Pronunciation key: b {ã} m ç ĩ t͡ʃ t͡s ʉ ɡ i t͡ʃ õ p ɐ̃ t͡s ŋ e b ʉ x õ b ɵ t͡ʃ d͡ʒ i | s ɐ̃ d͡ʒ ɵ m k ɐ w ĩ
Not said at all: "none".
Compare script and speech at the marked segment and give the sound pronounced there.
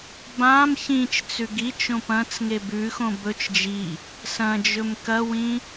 ã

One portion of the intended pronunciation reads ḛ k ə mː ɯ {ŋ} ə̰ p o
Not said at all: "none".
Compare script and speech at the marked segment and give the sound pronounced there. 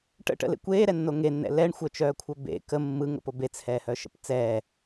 ŋ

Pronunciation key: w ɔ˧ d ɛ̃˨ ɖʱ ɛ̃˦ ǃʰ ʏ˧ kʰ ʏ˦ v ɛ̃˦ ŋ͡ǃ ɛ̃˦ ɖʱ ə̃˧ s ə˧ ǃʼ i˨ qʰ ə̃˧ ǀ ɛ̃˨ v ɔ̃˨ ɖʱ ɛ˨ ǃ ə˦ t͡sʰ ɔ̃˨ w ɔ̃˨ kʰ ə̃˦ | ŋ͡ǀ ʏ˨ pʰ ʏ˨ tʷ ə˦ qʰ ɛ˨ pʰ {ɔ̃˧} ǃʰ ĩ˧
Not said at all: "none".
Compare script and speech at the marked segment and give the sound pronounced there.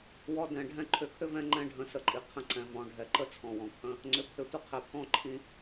ɔ̃˦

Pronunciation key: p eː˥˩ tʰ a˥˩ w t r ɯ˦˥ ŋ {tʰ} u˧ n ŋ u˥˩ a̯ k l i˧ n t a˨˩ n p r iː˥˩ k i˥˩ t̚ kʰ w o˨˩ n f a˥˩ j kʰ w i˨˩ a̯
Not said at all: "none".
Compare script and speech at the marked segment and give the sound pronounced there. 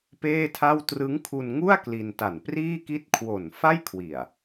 kʰ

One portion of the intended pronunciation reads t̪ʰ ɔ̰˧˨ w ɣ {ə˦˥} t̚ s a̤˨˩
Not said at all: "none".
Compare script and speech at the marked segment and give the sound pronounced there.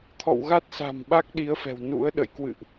a˦˥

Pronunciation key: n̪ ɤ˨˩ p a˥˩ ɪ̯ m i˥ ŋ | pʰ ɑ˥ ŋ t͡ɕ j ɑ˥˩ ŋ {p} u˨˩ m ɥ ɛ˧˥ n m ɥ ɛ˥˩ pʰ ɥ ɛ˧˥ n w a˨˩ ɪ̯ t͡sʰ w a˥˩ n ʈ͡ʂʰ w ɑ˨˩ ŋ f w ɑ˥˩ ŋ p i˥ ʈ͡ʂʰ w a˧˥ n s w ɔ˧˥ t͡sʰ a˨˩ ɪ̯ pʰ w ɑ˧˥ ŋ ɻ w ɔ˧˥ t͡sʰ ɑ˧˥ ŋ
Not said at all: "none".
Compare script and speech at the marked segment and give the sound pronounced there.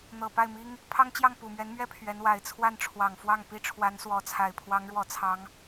p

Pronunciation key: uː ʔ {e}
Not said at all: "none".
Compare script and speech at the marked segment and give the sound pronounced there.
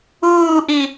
i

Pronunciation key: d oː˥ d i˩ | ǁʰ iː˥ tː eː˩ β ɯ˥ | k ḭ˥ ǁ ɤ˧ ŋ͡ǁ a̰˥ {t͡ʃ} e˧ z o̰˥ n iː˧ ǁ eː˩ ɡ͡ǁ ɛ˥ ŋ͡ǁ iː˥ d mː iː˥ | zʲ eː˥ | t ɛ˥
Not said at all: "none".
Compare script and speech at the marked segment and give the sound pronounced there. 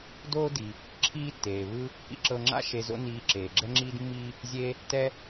ʃ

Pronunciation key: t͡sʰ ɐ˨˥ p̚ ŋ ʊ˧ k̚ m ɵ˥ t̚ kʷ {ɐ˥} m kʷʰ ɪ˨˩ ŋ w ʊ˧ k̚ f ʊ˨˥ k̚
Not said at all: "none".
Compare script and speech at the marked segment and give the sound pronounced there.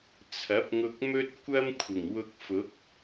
ɐ˥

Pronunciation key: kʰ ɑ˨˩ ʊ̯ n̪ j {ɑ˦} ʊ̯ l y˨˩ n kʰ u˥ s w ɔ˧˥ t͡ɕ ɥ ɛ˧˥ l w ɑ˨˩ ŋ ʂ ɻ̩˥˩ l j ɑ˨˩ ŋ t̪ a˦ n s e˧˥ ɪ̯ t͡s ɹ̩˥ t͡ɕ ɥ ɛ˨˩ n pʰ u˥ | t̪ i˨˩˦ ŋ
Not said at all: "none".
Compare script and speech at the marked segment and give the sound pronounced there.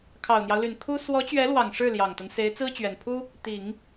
ɑ˦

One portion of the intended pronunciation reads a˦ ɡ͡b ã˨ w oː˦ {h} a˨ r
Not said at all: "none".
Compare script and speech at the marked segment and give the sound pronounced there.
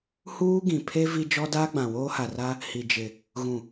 h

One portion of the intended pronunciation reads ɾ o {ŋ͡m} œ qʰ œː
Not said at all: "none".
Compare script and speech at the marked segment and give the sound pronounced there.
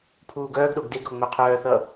ŋ͡m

